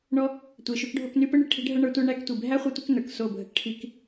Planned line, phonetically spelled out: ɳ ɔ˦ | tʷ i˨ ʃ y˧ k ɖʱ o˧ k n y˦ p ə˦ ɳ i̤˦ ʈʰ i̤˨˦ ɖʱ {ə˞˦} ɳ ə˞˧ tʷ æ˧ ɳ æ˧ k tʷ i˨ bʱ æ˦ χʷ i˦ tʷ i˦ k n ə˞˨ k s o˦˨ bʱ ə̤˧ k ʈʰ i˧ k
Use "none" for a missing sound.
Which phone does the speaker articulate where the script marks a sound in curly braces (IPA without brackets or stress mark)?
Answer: ə˞˧